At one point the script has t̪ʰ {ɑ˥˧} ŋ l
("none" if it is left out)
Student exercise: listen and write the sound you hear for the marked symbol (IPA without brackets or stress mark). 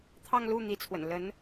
ɑ˥˧